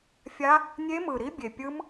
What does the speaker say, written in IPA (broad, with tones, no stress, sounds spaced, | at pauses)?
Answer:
fʲ a˦˥ | nʲ e˦˥ m ɯ˨˩ ɾ i˦˥ bʲ e˨˩ pʲ ɯ˦˥ m